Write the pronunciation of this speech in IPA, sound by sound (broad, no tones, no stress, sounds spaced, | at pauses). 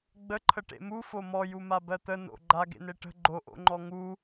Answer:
ɡ͡b ə ǃʰ ə ʈ ḛ m u f o m ɔ j u m a b ɜ t̪ ə n o̰ ɡ͡ǃ a ɡ ḛ n e ʈ ə̤ ɡ͡ǃ o ʔ o̰ ŋ͡ǃ ɔ ŋ u